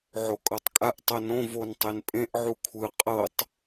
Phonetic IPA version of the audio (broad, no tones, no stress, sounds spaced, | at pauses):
ʕ o kʼ ɤ tˤ kʼ a ʔ tˤ ɤ n õ v o n tˤ e n pʼ ẽ ʔ ʕ u kʷʰ ɯ qʼ ɤ tˤ